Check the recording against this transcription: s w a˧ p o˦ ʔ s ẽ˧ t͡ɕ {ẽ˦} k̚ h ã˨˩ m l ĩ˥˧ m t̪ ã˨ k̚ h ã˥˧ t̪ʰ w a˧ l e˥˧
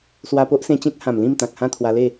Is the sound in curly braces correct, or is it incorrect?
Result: correct